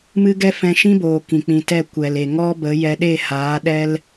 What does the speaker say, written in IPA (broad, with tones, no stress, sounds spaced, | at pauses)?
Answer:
m ɨ˦ ɡ ɛ˦ f ɛ̃˧ ʃ ĩ˦ b oː˨ k ĩ˨ k͡p ĩ˨ t ɛ˦˨ kʷ ɛ˨ l e˨ ŋ ɔ˦ b ə˨˦ j ɛ˧ ɗ e˦˨ h aː˨˦ ɗ ɛ˦ l